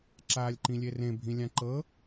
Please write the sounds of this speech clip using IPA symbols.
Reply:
ǁ aː lʲ ǃ ĩ lʲ e r ẽ bʱ ĩ lʲ ã ǃ ɤ

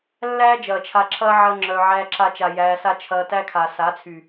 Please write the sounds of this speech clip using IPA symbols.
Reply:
lː æː˦ d͡ʒ ɐː˨ t͡ʃʰ a˧ ǁʰ ɐː˦ ʕ ɐ˦ ŋ͡ǁ œ˧ ʕ æː˧ ǁ a˧ t͡ʃ a˨ j æː˧ s a˦ t͡ʃʰ ɐː˧ t æ˦ kʰ a˨ s a˨˦ t͡sʰ y˨

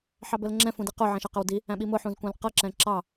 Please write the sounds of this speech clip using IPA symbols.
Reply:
ħ ɑ b ə l ŋ͡ǁ ɛ̃ f ũ d i q ʊ ʕ ɛ̃ ʃ ʌ q ə w d i | æ̃ ɓ i m ʊ ħ ũ z kʷ æ̃ l q ʌ ǁ ɛ̃ ǁ ɑ

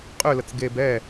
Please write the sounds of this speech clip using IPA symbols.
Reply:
qʼ ø l ə t͡s ɡ e b ɛ

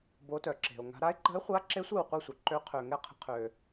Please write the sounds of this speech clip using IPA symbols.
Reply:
b o˧˥ t œ˨ ǁ e̤˨ o̯ ŋ a̤˧˥ ɾ a˧˥ e̯ ǃ ə̤˧˥ e̯ χʷ a˧˥ ǁ e˧˥ sʷ e˥˨ w qʷ i˥˨ sʷ œ˨ ǃ ø˧˥ qʰ ø˨ ŋ ɛ˥˨ qʰ ə̤˧˥ qʰ ø˨

